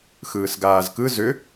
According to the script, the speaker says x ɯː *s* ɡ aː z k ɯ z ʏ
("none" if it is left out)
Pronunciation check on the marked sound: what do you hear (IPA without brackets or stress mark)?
s